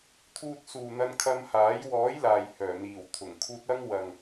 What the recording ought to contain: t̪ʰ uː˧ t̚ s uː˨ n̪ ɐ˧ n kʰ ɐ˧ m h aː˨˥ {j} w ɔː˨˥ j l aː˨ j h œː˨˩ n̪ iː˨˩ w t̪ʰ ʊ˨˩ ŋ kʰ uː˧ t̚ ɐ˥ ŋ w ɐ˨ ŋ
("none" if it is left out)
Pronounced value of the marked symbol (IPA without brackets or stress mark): j